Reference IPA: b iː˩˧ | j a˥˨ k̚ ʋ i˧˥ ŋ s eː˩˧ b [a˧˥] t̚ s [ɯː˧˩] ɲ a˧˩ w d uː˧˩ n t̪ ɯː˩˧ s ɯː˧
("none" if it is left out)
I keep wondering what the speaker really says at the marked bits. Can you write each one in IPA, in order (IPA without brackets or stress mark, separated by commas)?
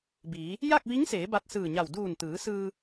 a˧, ɯː˧˩